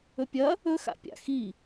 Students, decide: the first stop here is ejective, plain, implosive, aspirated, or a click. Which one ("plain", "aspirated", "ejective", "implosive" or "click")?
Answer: plain